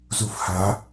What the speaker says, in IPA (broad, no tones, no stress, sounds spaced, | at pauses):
z u f h a